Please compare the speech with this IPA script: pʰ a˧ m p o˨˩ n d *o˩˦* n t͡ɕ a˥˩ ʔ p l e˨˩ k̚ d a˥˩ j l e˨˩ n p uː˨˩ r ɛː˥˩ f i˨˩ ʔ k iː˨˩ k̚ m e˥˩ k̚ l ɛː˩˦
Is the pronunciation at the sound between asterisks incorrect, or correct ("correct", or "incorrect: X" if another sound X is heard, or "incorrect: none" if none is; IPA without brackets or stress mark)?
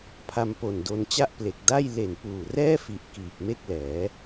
incorrect: o˧